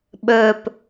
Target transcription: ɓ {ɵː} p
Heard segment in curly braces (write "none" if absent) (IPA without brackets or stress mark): ɵː